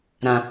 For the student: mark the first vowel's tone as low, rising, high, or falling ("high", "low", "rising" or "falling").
low